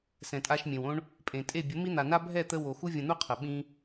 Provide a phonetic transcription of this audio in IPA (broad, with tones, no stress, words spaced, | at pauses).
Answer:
sɛ̃˨tʼa˧ʃmʲẽ˨wõ˦ɳ | pʼẽ˨tʼe˦˨ bʲə˨˦mi˦n̪a˨na˦ bʱɛ˦˨t̪ə˧ wo˨xu˦ vʲə̃˧n̪u˦qʰə˨ ɓĩ˦